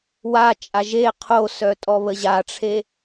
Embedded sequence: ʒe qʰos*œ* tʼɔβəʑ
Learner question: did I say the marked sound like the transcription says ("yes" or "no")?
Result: yes